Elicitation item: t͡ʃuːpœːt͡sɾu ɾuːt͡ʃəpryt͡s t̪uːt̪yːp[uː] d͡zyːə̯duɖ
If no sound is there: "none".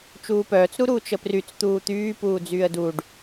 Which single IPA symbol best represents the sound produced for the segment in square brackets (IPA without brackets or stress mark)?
uː